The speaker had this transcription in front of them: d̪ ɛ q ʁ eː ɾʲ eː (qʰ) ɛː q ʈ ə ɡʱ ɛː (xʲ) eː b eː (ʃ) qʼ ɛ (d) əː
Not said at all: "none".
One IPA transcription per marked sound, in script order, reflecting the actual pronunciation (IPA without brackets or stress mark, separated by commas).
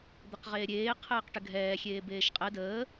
qʰ, xʲ, ʃ, d